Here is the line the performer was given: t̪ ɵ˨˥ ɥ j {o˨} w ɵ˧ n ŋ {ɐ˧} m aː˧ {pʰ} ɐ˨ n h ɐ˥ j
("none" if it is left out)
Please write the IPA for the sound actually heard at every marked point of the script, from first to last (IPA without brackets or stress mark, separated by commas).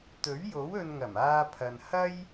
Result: o˨˥, ɐ˨˩, pʰ